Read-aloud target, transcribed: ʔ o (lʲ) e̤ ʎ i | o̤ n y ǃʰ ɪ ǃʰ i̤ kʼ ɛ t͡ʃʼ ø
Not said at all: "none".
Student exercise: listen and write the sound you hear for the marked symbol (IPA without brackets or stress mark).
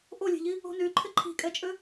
lʲ